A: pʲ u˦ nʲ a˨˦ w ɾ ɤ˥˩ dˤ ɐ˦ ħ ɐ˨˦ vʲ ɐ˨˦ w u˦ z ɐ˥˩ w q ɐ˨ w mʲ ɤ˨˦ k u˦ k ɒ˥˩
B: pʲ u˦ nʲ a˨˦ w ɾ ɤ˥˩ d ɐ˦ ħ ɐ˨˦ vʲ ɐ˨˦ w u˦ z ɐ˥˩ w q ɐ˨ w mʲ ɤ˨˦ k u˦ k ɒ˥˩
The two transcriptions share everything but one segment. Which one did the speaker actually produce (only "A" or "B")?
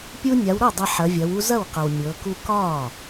A